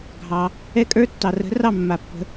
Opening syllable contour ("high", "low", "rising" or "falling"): low